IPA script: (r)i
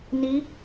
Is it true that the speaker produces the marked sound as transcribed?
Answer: no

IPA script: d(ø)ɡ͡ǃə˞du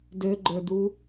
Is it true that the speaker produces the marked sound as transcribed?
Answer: yes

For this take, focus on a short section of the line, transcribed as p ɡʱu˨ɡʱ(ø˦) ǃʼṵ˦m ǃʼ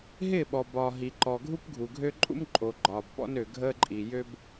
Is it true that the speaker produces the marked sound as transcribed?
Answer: yes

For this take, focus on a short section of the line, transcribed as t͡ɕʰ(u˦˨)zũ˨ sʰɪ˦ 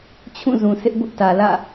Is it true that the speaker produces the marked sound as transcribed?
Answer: no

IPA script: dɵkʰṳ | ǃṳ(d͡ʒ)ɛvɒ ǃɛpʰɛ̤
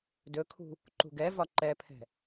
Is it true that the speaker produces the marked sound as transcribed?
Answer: no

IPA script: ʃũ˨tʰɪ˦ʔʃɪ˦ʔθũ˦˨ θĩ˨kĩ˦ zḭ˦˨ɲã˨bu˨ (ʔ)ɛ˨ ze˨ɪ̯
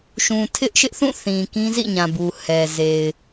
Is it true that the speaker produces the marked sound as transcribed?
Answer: no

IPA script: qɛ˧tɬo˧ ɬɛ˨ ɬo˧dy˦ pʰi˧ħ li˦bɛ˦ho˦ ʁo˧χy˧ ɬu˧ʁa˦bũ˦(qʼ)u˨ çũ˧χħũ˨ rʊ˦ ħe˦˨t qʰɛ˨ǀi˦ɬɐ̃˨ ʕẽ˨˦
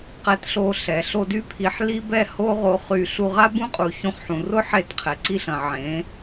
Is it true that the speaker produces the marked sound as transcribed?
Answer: yes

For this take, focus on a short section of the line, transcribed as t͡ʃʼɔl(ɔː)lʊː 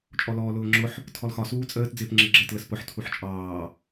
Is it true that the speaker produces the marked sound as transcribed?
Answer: yes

